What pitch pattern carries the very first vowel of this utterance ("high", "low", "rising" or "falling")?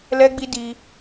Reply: high